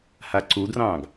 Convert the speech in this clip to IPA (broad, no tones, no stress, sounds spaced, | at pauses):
h a ǀ u d r ɑ̃ː ɡ